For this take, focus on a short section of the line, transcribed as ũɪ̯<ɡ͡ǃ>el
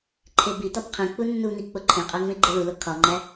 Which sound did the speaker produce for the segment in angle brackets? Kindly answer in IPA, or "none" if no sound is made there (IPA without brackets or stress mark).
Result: ɡ͡ǃ